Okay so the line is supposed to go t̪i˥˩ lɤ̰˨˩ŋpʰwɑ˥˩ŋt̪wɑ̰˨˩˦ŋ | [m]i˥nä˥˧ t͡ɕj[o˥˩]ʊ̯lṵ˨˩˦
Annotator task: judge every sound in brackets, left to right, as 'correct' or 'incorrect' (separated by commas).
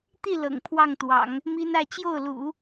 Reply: correct, correct